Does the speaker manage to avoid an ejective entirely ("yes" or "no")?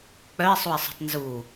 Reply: yes